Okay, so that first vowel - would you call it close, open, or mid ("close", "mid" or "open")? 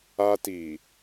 open